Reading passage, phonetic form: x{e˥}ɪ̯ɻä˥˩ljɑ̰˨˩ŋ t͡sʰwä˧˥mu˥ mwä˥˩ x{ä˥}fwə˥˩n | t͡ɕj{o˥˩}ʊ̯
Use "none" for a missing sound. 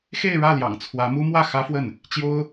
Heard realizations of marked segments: e˥˧, ä˥, o˥

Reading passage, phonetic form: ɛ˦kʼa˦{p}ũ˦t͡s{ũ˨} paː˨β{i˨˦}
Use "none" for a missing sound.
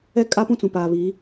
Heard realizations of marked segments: p, ũ˨, i˨˦

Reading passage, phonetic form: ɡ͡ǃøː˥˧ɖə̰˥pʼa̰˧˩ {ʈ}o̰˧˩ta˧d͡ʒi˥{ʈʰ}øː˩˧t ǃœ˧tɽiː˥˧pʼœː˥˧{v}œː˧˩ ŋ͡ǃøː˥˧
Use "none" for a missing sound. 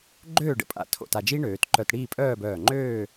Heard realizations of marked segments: tʰ, ɳ, b

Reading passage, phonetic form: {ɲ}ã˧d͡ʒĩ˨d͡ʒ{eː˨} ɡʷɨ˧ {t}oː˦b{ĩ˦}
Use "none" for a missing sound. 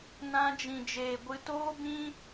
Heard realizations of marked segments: n, eː˨, t, ĩ˦

